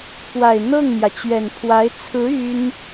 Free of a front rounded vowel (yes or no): no